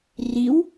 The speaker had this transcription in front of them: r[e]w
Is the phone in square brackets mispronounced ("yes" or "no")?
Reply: yes